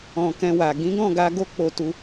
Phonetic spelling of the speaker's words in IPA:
ɔ̃˨ k ɛ̃˧ w a˨ ɡ ĩ˨˦ ɡ ɔ̃˦˨ ɡ a˧ ɡ o˦ k͡p o˧ t u˧

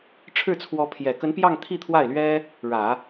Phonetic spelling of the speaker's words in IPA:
ʈ͡ʂʰ ɻ̩˥˩ t͡sʰ w ɔ˧˥ pʰ j ɛ˨˩ k ə˧˥ n p j ɑ˥˧ ŋ t̪ʰ i˥˧ t̪ʰ w a˥˩ ɪ̯ l ɥ ɛ˥ | ɻ ä˨˩˦

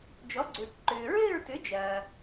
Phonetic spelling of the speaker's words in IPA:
d͡ʒ ɔ˨˥ ɡ͡ǀ ʏː˨ ʈ ǃ ʏː˨ ɹ ɘː˥˧ ɹ t ʏ˨˥ d͡ʒ ɐː˨

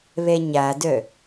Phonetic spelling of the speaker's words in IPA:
β ɛ ɲ a d œ

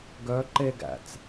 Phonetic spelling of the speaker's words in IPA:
ɡ œ ǃ e ɡ æ̰ t͡s

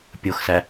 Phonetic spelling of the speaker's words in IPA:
pʲ o x s æ

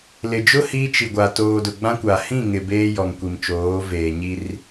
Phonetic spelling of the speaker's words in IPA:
l ɪ˨ d͡ʒ ʊ˦ h iː˦ t͡ʃ i˨ ɡʷ a˨ t oː˨ d ʊ˨ ɡ͡b ã˦ kʷ a˨ h ĩ˦˨ ŋ ɪ˨ b eː˦ j ɔ˨ ŋ kʷ i˨ m t͡ʃ oː˨˦ v eː˨ ɲ i˦ r

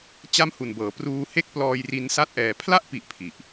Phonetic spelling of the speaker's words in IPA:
t͡ɕ a˥˩ m h u˨˩ n b ɤː˩˦ p r uː˧ h e˥˩ k̚ p l ɔː˧ j r i˧ n s a˥˩ t̚ ʔ ɛː˧ pʰ l a˥˩ ʔ p i˨˩ ʔ pʰ i˨˩ ʔ

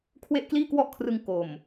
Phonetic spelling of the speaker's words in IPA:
kʰ w e˥˩ ʔ k l iː˥˩ k w ɔ˥˩ ʔ kʰ r ɯ˧ ŋ k o˨˩ m

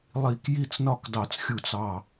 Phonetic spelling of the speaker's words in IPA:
lˠ i˥˩ k j i˥˩ t͡s n ɒ˥˩ k d ɑ˧˩ t͡s xʲ u˧˩ t͡s ɑ˧˩

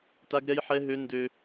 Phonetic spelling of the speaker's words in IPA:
t a˦ ɡ ɾ ɛ˦ j ħ ɛ˦ ɦ ø˦ n d ø˦

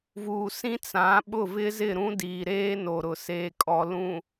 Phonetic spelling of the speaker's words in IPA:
v uː˨ s ĩ˦ t͡s ã˨˦ ɓ ʊ˦˨ v ɪ˦ z ɪ˦˨ ɾ ũ˦ d iː˨ ɾ eː˦ n o˨ ɾ ʊ˨ s eː˨ kʼ ɔ˨ l ũ˨

